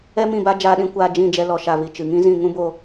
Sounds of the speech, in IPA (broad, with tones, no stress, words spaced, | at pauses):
ɛ˦mĩ˦˨ba˦ d͡ʒaː˧ɗĩ˧ kʷaː˧d͡ʒĩ˦˨d͡ʒɛ˧ lɔ˨ʃa˨vi˨ t͡ʃɨ˨ŋĩ˦zĩ˦˨ ŋũ˦bo˧